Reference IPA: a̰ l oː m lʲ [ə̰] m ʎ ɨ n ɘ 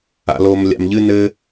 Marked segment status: incorrect: a̰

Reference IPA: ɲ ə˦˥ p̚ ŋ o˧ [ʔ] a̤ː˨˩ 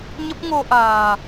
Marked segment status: correct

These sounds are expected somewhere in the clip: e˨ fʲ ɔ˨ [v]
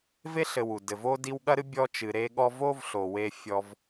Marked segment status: correct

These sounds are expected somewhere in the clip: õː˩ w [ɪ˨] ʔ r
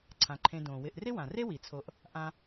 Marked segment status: correct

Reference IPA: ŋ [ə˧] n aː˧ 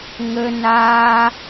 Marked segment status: correct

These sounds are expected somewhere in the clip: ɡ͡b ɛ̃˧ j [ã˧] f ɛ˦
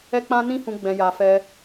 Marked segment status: incorrect: a˧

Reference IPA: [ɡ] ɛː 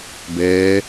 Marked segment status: incorrect: b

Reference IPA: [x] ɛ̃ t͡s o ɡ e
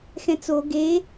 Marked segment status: correct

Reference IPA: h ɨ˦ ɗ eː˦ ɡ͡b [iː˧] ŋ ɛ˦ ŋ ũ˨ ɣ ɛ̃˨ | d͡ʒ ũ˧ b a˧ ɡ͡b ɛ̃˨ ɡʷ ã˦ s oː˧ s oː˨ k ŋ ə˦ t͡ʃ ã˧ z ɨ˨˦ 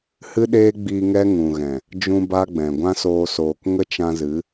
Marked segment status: correct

